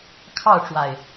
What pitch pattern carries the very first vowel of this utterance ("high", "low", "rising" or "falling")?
falling